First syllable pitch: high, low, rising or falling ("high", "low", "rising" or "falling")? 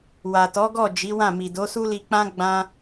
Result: low